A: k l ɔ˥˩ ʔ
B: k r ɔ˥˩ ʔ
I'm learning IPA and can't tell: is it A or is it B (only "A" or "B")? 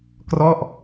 B